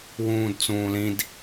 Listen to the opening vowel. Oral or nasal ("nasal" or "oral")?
nasal